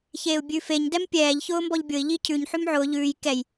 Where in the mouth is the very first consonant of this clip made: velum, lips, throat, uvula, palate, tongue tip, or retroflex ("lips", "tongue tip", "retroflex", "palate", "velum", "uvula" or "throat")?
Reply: palate